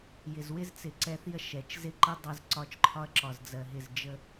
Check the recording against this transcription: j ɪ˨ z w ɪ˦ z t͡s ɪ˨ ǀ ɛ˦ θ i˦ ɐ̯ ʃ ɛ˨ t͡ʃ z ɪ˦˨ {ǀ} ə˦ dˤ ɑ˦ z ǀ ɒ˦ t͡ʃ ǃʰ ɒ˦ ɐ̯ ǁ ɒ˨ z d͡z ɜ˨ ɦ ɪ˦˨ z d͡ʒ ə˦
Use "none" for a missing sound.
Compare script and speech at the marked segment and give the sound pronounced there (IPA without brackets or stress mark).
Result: ǃ